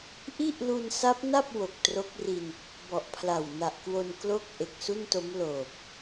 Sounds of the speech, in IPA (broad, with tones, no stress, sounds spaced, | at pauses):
ʔ i˥˩ ʔ l u˧ n s a˦˥ p̚ n a˥˩ p̚ w o˨˩ k̚ t r o˦˥ k̚ r i˧ n | b ɔ˨˩ ʔ pʰ l a˨˩ w n a˨˩ ʔ k w o˧ n k l o˥˩ k̚ ʔ e˨˩ k̚ s u˥˩ n t o˦˥ m l oː˨˩ p̚